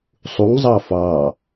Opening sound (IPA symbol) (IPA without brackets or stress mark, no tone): sˤ